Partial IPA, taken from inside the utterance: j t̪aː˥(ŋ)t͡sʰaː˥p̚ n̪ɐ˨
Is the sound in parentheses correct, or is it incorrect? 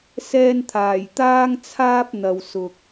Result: correct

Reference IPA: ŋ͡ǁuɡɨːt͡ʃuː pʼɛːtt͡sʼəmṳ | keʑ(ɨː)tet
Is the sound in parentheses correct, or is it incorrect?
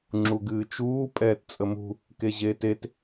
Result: incorrect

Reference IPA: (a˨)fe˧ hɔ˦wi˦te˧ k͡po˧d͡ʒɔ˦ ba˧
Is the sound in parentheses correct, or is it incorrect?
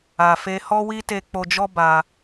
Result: correct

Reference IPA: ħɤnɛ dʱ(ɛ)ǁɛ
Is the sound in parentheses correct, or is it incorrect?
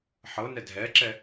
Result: correct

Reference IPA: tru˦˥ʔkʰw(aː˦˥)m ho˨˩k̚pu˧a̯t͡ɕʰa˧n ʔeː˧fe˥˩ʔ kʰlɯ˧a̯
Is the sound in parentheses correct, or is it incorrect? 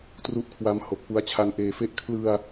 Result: incorrect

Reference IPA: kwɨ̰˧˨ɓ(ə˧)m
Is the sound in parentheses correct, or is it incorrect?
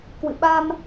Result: incorrect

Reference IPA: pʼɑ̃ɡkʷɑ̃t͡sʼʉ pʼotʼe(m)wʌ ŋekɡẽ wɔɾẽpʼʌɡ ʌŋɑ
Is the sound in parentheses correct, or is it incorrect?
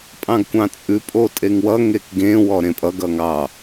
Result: incorrect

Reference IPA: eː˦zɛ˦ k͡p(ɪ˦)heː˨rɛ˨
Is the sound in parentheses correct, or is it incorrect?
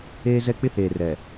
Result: correct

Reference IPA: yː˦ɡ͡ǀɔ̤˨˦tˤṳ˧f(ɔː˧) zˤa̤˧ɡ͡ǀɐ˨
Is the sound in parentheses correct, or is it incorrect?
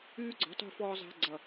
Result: correct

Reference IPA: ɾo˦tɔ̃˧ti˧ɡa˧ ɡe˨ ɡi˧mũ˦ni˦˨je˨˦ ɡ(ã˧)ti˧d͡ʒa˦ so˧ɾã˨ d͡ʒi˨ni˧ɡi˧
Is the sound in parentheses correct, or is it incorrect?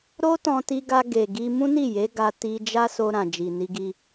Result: incorrect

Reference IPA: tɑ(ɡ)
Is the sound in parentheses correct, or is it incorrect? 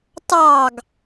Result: correct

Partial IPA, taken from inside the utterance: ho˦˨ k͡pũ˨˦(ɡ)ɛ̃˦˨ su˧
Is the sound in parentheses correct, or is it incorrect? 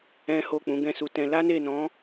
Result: correct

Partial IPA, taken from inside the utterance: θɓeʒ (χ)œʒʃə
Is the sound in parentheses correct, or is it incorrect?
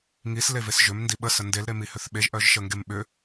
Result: incorrect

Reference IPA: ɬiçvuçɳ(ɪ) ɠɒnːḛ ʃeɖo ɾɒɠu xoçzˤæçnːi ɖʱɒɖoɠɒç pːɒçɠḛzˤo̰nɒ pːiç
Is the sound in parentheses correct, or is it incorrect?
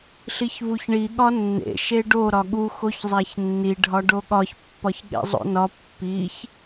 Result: incorrect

